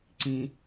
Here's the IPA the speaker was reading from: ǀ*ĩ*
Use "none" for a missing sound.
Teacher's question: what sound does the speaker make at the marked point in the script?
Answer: ĩ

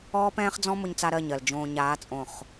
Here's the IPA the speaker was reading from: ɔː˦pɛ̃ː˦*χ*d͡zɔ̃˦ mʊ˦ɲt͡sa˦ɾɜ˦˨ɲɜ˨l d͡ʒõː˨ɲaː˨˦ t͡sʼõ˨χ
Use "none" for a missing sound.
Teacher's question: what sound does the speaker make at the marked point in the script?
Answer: χ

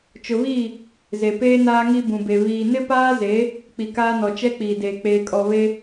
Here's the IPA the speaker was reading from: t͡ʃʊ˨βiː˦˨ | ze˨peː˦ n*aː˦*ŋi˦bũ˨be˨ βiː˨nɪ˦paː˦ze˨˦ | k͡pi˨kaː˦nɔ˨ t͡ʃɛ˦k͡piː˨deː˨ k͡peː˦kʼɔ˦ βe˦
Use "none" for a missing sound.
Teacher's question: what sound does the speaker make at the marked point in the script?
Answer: aː˦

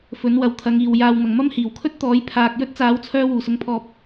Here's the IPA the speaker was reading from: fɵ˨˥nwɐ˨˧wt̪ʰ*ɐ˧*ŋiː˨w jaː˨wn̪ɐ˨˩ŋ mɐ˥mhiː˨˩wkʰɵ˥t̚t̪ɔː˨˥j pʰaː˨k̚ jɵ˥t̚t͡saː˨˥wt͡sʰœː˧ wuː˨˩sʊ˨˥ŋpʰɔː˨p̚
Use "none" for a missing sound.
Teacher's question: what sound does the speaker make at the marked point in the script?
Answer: ɐ˨˧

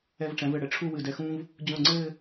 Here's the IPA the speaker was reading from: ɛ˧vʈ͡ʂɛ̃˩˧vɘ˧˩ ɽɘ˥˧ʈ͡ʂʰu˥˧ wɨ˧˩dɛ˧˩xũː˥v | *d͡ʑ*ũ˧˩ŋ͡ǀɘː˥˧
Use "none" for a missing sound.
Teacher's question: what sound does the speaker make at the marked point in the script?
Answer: d͡ʑ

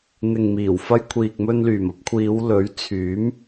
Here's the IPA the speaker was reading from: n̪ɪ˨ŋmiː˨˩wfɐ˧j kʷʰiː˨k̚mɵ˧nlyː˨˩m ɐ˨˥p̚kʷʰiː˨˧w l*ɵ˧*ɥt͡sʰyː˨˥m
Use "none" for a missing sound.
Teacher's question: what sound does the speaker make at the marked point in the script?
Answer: ɵ˨˥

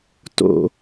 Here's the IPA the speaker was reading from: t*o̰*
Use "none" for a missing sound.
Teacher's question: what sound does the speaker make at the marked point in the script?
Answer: o̰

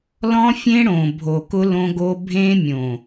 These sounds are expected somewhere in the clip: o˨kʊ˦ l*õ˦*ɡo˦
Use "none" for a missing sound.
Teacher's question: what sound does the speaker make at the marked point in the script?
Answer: õ˦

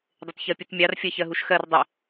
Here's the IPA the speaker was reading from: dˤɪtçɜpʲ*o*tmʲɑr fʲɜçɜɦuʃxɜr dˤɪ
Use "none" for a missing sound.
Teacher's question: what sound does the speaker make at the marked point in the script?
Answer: u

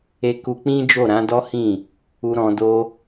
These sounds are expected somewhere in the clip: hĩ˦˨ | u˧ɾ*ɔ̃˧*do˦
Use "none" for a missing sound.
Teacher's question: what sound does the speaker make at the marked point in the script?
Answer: ɔ̃˧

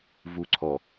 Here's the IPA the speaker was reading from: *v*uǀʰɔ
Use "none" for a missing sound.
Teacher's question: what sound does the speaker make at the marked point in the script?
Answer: v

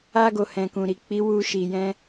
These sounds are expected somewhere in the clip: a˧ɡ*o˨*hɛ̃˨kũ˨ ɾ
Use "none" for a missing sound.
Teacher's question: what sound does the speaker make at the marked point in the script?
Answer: o˨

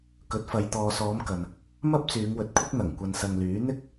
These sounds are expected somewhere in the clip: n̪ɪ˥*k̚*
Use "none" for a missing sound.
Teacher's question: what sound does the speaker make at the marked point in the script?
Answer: k̚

